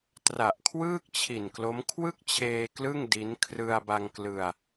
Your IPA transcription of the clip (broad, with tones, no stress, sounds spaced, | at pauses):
t r a˨˩ ʔ kʰ w ɯː˥˩ k̚ t͡ɕʰ i˨˩ n k l o˦˥ m kʰ w ɯ˥˩ k̚ t͡ɕʰ eː˧ k l ɯ˥˩ ŋ d i˦˥ n kʰ r ɯ˧ a̯ b a˧ ŋ k l ɯ˧ a̯